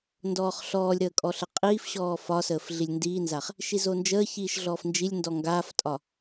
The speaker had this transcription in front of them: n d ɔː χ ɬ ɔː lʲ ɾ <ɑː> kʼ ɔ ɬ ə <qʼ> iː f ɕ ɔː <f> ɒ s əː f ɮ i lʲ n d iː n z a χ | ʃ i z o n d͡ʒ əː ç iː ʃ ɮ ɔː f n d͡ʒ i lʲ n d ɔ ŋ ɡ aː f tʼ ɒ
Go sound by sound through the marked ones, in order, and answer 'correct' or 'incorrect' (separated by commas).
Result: incorrect, correct, correct